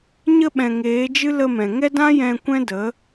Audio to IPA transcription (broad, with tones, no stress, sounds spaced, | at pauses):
ɲ ə˧ ɓ ɛ̃˨ ŋ eː˨˦ d͡ʒ ɨ˦ l ə˧ m ɛ̃˨ ŋ ɛ˦ d ã˦ j ɛ̃˧ kʷ ɛ̃˦ d ə˨˦